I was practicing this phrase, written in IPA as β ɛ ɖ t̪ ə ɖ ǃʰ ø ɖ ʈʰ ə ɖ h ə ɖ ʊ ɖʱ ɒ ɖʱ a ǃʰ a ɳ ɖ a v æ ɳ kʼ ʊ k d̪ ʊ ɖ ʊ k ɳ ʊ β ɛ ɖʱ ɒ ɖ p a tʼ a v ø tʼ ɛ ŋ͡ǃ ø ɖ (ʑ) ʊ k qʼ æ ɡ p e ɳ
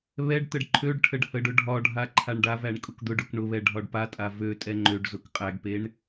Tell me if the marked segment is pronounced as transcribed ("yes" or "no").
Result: no